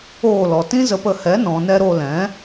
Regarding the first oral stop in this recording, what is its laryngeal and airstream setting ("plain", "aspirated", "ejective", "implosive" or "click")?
plain